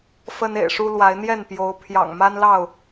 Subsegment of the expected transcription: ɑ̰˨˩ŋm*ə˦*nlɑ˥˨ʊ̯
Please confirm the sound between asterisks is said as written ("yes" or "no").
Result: no